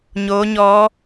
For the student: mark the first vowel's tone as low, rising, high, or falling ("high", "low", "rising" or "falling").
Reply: rising